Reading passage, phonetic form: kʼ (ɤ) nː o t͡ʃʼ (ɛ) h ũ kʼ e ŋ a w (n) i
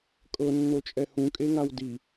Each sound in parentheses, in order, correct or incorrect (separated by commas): correct, correct, incorrect